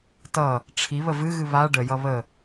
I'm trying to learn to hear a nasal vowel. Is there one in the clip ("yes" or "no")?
no